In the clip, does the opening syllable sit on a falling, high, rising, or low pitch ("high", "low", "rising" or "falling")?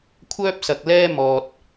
high